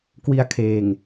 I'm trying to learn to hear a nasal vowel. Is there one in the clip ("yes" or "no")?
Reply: no